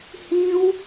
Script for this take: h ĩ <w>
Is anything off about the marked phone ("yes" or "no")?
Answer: no